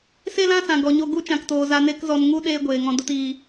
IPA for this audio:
s e˦ l ã˦ s ã˨ ɡ ɔ˨ ɲ o˧ ɡ u˦ t͡ʃ ã˨ k t oː˨ z a˧ n e˦ k z ɔ˧ n ŋ u˦ ɗ eː˦ ɡʷ eː˨ ŋ ɔ̃˧ d o˦ t iː˧

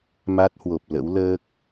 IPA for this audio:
m a˦˥ t̚ h w o˨˩ p̚ l ə̰˧˥ w l əː˦˥ k̚

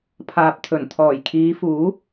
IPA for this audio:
pʰ aː˨ p̚ t̪ʰ ɵ˨˩ n t̪ʰ ɔː˨˩ j kʰ iː˨˧ f uː˨˥

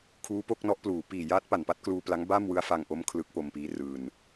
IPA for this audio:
kʰ uː˦˥ p o˦˥ k̚ n ɔ˦˥ ʔ p l uː˩˦ p iː˨˩ j aː˦˥ t̚ p a˨˩ n p a˥˩ t̚ k l uː˧ p l a˦˥ ŋ b a˥˩ m w ɯ˦˥ a̯ f a˧ ŋ ʔ o˦˥ m kʰ l ɯ˦˥ k̚ p o˧ m p iː˦˥ r ɯː˧ n

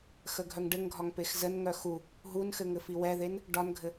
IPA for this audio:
x ə ɡʱ œ ŋ ɖ ɘ ŋ ɡʱ ɒ ŋ p e x z ə n ŋ œ x u | ɦ u n x ɘ ŋ ɘ f i w ɛ ð e n | ɖ ɒ n ɡʱ ɘ

